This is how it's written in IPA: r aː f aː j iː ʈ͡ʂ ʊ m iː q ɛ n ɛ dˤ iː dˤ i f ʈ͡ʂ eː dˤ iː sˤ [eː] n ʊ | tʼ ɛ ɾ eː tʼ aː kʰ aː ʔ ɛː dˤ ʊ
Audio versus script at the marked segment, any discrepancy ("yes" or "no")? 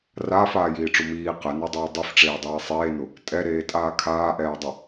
no